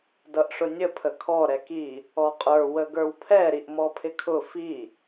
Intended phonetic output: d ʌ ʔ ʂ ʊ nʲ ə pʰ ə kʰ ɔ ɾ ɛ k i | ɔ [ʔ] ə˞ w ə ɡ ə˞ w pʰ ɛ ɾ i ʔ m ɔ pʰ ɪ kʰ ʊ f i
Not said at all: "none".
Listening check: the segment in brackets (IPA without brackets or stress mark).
qʼ